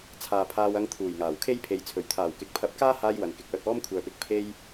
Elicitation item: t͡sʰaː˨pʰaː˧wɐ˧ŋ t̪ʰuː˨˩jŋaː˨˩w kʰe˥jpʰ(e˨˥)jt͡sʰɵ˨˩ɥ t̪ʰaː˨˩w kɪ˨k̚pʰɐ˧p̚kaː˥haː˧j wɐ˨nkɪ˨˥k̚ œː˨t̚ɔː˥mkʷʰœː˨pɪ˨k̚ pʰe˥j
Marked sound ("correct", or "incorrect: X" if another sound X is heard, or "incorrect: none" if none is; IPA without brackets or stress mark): incorrect: e˨